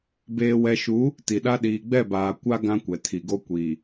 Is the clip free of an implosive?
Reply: no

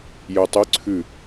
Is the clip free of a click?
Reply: no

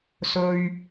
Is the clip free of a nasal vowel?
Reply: yes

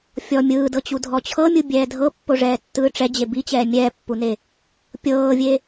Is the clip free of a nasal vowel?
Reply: yes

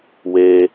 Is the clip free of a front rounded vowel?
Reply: yes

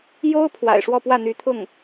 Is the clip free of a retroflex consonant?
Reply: no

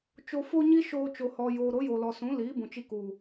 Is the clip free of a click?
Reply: yes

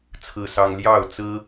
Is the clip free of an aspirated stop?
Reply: no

